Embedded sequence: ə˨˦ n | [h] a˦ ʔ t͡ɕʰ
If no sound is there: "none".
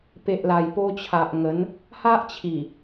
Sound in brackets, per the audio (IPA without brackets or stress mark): h